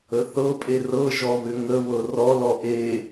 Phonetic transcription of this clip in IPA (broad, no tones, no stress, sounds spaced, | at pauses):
ə θ ɤ pʼ e r ɤ ʒ ɔ β ʏ ŋ ə β ɤ r ɔ l ɔ ʔ e